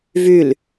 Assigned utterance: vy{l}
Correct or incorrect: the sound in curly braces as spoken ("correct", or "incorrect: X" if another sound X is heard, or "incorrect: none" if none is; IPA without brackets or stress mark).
correct